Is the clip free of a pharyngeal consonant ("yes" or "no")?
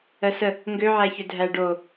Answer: no